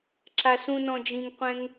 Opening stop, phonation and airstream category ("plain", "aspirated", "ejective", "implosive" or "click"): click